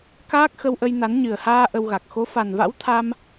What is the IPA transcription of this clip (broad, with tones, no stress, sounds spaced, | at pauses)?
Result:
k aː˦˥ k̚ x ə˧ w ʔ ə˧ j n a˨˦ n ɲ ɨ˨˩ ə̯ h aː˧ ʔ ə˧ w ɣ a˨˩ k̚ x o˨˦ f a˨˩ n v a̰˧˥ w t̪ʰ a˧ m